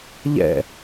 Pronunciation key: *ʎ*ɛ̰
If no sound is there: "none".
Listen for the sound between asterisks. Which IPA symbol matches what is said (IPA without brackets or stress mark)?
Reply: ʎ